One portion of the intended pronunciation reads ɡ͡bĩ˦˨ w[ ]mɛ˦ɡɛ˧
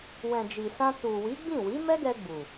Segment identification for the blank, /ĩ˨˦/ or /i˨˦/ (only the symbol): i˨˦